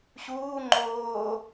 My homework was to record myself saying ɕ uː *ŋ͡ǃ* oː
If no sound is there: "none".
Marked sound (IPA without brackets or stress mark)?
ŋ͡ǃ